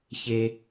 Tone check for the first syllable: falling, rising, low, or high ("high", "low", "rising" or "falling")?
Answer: low